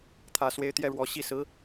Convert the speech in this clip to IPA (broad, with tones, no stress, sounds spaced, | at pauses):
t̪ʰ ä˨˩ s w e˧˥ ɪ̯ t̪ j ɛ˥˩ ɻ w ɔ˧˥ ɕ i˧˥ s ɹ̩˧˥